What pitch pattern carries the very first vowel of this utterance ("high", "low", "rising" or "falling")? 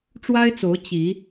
high